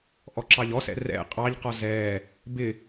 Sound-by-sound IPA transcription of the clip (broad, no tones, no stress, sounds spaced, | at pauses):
ʔ ɔ ǁ ɑ ʎ ɔ s ɛ̰ r ɛ̰ qʼ ɑ ʎ q ɔ z ɛː | b ɪ